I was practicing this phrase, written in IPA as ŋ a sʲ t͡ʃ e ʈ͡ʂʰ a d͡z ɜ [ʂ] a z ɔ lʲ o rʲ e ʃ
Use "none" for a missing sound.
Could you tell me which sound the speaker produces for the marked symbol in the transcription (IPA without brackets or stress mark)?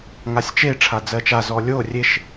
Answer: t͡ʃ